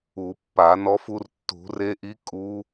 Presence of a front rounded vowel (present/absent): absent